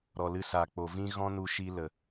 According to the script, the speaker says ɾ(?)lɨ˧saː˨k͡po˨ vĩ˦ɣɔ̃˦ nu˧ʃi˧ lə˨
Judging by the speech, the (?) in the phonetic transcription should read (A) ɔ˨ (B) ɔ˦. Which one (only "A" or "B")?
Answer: A